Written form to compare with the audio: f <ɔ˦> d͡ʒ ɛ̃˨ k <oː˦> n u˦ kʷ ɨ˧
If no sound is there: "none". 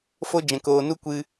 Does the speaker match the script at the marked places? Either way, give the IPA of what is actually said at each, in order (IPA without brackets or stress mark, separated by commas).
o˦, oː˨